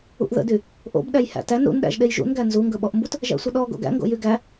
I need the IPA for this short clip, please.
ṵ ʔ ð ə̰ d y | ʔ o̰ b ɗ æ j h æ̰ t æ n ɾ ṵ n ɗ æ̰ ʒ ɗ e j ʒ ṵ n ɡ æ n z u ŋ ɡ ɵ ɓ ɔ ʔ m b u t | ʒ æ̰ sʷ ə ɗ ɔ ɡ o̰ ɡ æ̰ ŋ ɡ o̰ j y ɡ æ

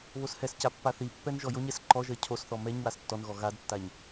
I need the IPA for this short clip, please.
β o s h ɛ s c a pː a θ i pː ɛ n ʒ ɔ j o ɲ ɛ s ǃ ɔ ʒ ɜ cʰ o s θ ɔ m ɛ ɲ w a s tː ɔ n ɣ ɔ ɣ a d tː a ɲ

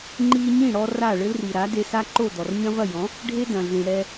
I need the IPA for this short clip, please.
ŋ͡ǃ i˧ ɲ ĩ˥˩ ɽ ɔ˧ r a˥˩ ɭ ɘ˥ l r i˩ ɾ a˩˥ d e˧ s a˥ ǃ o˥˩ d ɔ˩ r ɲ ɐ̃˥ v ɐ˥˩ j ɔ̃˩˥ | ɖʱ e˥ d ɐ̃˩ ɮ ĩ˩ ɽ ɛ˧

